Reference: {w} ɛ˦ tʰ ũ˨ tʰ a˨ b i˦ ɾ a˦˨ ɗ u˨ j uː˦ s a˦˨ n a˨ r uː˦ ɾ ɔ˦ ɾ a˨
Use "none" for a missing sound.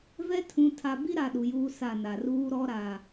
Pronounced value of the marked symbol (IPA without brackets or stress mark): v